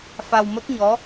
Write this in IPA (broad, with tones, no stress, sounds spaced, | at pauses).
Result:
f a˧ w m ə˦˥ k̚ ɲ ɔ˧˥